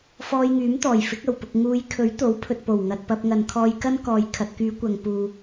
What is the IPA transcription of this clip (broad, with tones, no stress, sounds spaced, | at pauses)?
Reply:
f ɔː˧ j ŋ yː˨˥ m t̪ ɔː˨˩ j f ɪ˨˥ k̚ ɐ˨˩ w p ʊ˨ k̚ ŋ uː˨˧ j kʰ ɵ˨˥ ɥ t̪ o˨˥ w pʰ ɵ˨ t̚ p o˨˩ w ŋ ɐ˨ t̚ p ɐ˧ p̚ ŋ ɐ˨ n kʰ ɔː˧ j k ɐ˥ n k ɔː˨ j kʰ ɐ˨ t̚ k yː˨˧ kʷ ɐ˨ ŋ p uː˨